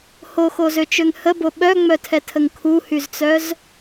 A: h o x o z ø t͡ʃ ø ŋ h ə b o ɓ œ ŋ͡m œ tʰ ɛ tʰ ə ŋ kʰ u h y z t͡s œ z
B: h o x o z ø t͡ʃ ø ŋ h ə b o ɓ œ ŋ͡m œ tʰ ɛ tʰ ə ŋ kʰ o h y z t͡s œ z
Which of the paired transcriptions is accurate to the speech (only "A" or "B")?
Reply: A